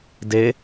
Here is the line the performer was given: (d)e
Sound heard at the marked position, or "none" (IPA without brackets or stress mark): d